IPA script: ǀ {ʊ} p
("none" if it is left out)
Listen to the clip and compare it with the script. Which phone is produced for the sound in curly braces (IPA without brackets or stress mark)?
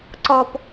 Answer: ɔ